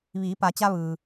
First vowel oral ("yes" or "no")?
yes